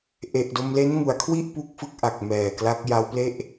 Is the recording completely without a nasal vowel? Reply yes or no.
yes